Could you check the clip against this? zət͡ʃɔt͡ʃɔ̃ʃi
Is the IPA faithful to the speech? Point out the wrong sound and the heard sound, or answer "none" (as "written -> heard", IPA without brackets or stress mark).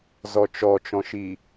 ə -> ɔ